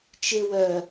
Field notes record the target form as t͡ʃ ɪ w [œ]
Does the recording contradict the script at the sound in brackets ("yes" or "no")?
no